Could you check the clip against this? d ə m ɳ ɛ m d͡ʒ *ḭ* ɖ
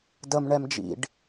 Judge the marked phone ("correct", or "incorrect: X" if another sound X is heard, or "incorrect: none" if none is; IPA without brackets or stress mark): correct